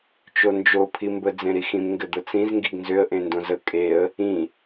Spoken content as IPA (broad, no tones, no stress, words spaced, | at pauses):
t͡ʃond͡ʒo pʰimbə d͡zẽɾixĩm ŋɡɘd̪ət͡sĩz ŋɡiɡnzʏə̯ ʔẽndõzə kʼeə̯ | ĩ